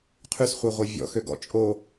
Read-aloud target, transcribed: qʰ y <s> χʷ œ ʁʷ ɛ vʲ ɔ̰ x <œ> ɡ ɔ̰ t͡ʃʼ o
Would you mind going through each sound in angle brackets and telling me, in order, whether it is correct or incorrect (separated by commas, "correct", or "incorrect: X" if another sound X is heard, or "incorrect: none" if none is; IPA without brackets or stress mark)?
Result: correct, incorrect: ø